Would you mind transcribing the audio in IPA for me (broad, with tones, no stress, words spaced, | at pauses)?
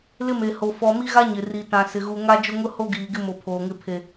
lɪ˦me˨ho˨ fɔ˨mi˦ɣa˦ ɲɪ˨ri˨tã˨ sɪ˨ɣu˨ ŋa˦d͡ʒʊ˦ŋʊ˦ho˦ ɡiː˨ɡɪ˦mo˨ pʰoː˨ŋɪ˦ pʰe˨